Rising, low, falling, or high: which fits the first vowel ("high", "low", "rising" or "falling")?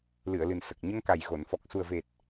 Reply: low